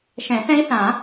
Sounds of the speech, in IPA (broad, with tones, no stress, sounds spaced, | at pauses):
ʃ ɛ̃˨˩˦ θ ɛ̃˦˥ i̯ θ ã˨˩˦